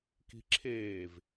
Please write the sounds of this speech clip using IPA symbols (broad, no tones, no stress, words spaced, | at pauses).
ki̤ǁʰeːv